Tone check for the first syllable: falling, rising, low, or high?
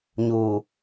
low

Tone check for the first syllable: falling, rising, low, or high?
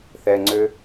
low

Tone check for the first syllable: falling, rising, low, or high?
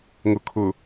low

